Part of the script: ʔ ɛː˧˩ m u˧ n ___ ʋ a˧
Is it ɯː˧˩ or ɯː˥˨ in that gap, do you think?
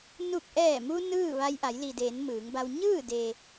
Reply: ɯː˥˨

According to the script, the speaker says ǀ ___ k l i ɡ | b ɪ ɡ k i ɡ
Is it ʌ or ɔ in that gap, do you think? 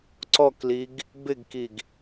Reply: ɔ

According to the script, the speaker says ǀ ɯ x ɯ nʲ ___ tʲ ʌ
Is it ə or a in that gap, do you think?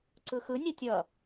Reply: a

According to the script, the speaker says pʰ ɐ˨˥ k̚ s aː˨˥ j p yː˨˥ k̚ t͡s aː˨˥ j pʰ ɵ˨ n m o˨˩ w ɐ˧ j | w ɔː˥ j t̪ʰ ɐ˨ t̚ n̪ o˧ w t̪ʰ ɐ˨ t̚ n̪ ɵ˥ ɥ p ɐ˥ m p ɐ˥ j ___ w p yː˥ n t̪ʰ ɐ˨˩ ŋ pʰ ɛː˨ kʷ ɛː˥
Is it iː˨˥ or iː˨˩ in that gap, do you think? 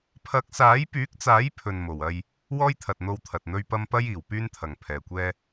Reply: iː˨˩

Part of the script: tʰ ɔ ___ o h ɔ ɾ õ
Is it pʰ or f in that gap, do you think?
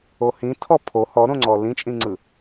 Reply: pʰ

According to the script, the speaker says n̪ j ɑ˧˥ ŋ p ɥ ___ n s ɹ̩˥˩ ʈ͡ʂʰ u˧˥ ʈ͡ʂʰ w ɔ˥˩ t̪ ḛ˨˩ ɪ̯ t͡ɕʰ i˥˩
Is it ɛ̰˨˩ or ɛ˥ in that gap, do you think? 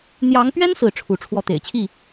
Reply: ɛ˥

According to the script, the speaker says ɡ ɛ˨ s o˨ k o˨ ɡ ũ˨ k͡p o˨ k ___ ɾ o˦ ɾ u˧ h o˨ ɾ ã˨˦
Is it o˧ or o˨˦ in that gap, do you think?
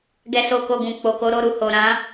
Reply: o˨˦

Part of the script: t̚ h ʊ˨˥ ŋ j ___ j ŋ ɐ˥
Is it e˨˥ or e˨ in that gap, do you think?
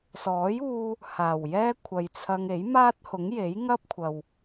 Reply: e˨˥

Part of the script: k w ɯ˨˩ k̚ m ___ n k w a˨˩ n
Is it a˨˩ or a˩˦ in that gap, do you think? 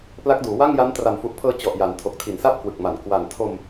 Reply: a˨˩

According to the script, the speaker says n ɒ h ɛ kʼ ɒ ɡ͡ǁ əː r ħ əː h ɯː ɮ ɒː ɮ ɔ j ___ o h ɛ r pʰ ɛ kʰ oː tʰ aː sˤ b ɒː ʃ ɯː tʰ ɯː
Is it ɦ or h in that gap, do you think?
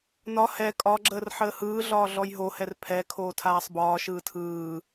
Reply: ɦ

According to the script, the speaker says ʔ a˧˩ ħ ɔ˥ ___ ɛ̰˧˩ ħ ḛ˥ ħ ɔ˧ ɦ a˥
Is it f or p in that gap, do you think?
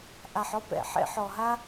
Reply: p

